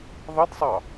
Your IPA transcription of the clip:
ðˤ ə d sˤ ɑ

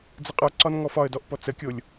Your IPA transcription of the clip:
d͡z ə qʼ ə˞ ǀ ɒ n ŋ ɔ f ɒ ə̯ d ɔ ʔ p ɔ t͡s ə kʲ o lʲ

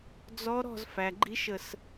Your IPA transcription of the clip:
d͡z ɔ˧˥ ɾ ɔ̤˥˧ z f æ˩ ɡ͡ǃ i˧˥ ʃ ə˧˩ s

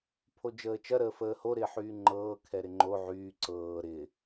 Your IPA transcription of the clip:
pʰ o d͡ʒ əː t͡ʃ ɐ ɾ əː f əː h o ɾ ɪː ħ yː ŋ͡ǃ ɤː kʰ ɛ ɾ ɪ ŋ͡ǃ o ʕ yː ǀ ɤː ɾ ɪ

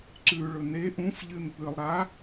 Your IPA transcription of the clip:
ǀ ʉ ɭ ɵ n e ʔ ũ f ʎ ɨ n p ɨ lˠ ɾ a

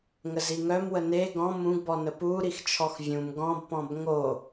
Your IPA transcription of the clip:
ŋ ə z i ŋ œ m w ə n e ɡ ɔ̃ m ũ ɡ b ɔ n ə p u ɾ i x t͡ʃʰ ɔ x vʲ ũ m ɡ ɔ̃ b p ɔ̃ b ŋ o

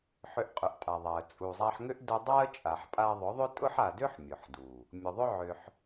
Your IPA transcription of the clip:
ħ ʏ˧ ʔ qʼ ʏ˨ ʔ tʼ a˨ ðˤ a˨ ə̯ t͡sʼ u˨ zˤ a˧ ħ ŋ ʏ˦ ʔ d ʊ˧ dˤ a˦ ə̯ t͡ʃʼ a˨ ħ pʼ a˧ ðˤ ʊ˨˦ ðˤ ʏ˦ tʼ ʊ˦ ħ a˨ d ʏ˦ ħ mʲ ʊ˨ ħ d u˨ | mʲ ʊ˨ ðˤ ʏ˦ ʕ ʏ˧ ħ

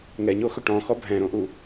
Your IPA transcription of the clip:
ŋ ɛ ɲ o x ɵ ʈ ɔ̃ x ɔ bʱ ɛ̃ ɾ õ ʔ u

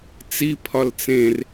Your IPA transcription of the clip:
t͡s i pʰ ɒ l t͡s ẽ r

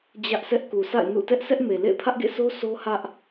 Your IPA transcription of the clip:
d͡ʑ ä˦ ʔ s ɛ˦ ʔ k u˨ sʰ a̰˦˨ ɪ̯ n ṵ˦˨ t ɛ˦ ʔ s ɛ˦ ʔ m e˨ l ḛ˦˨ ɪ̯ pʰ ä˦ ʔ ɡ ḛ˦˨ s o˦ s o˦ h ä˦ ʔ

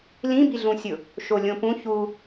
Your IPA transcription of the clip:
l ĩ b i ɮ ũ sʲ ʊ | ʃ o lʲ õ p ũ ç u

